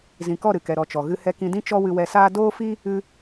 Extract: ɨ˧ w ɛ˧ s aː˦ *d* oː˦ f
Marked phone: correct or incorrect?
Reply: correct